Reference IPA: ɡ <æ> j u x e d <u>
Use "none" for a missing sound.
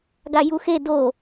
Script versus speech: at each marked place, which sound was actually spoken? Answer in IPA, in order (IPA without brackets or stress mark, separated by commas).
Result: a, o